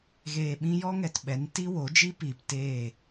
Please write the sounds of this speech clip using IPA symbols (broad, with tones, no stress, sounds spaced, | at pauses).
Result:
ɣ eː˨ ɓ ĩ˧ j ɔ˦ ŋ ɛ˨ t ɓ ɛ˨˦ n t i˦ w o˨˦ d͡ʒ i˦ p iː˨ p t eː˦˨